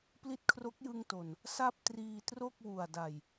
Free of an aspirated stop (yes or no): no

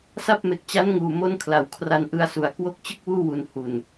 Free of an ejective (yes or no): yes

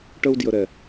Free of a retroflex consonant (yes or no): no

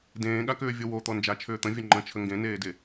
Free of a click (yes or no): no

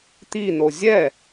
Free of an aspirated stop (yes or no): yes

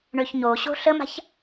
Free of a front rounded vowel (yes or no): no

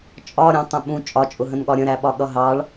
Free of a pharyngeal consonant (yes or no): yes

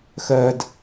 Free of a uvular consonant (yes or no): yes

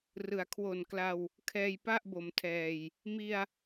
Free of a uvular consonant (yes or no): yes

